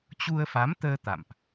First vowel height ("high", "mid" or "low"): high